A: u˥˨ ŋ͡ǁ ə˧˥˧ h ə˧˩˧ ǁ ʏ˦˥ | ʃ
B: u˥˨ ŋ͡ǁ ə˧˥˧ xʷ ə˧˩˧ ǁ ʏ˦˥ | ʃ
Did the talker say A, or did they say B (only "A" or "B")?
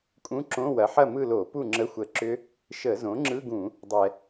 B